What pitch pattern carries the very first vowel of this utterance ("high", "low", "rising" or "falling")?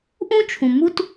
high